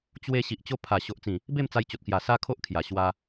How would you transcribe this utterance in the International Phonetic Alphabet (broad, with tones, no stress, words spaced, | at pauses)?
t͡ɕwe˧ ɕi˨ʔt͡ɕo˧pʰa˨˩ ɕo˨ʔt͡sĩ˨˩ | be˥˧mt͡sa˧jt͡ɕo˨t̚kja˨˩ sa˦kʰo˦ʔkʰja˨˩ ɕwa˧